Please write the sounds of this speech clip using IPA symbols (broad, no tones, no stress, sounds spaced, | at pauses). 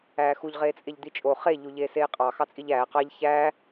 æː x u ʎ ʁ eː t͡sʼ e ʎ d̪ i t͡ʃʼ o χ e ʎ u ʎ eː s eː qʼ ɑ x ɑ t͡sʼ i ʎ æː q ɑ ʎ ç æ